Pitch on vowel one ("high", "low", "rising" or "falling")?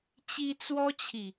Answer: high